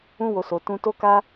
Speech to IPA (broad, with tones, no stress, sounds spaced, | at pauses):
ũ˦ w o˧ s o˧ t ũ˦ t o˦ k a˦